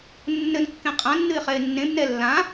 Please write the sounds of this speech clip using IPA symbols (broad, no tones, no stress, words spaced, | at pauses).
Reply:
nːɘnkːẽ qʼãnːɨɪ̯ χɛɪ̯nːẽbnɛ lːã